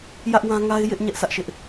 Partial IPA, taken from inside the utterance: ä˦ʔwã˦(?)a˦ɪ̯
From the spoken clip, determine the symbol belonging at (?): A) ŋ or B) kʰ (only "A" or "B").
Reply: A